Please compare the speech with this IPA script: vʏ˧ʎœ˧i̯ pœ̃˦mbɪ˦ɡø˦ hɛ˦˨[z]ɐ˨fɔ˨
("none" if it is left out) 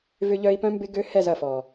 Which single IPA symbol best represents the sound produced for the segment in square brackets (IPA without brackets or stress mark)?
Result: z